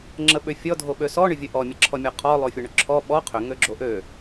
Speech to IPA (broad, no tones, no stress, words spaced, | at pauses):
ŋ͡ǁəɓʏfʲɔ dʱoɓøsɔ ɳʏvʲəʔɔ mʲəǁʰɔmʲɔqʰɔ lˠofʲɔɳʏǁʰɔ ɓɔ qʰʏ ŋøɡ͡ǁoʔø